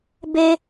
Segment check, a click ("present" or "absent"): absent